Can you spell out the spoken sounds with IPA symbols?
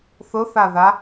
θ ʊ θ a ð a

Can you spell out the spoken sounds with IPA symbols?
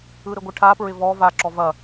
ɯ ɾ ɪ ɡʷ ɪ ʈʰ a p ɹ ɪ v ɔ v a ǁ ɔ v ɐ

